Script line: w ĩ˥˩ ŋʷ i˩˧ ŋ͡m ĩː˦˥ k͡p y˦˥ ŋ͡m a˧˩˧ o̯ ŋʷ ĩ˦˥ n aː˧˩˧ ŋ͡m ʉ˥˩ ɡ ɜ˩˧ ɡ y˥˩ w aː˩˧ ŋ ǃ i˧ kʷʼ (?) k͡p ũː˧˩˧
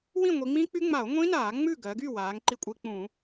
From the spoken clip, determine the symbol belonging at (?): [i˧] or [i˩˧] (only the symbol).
i˧